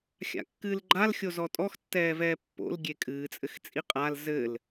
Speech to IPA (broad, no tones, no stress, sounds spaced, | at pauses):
xʲ a̰ kː ɨː l ɡ͡ǃ a l xʲ o z ɔ tʼ ɔ x tː ɛː v ɛː pː o̰ l ɡʲ e kʼ ɨː t͡sʼ ɘ x t͡sʼ i qʼ a l z ɘ l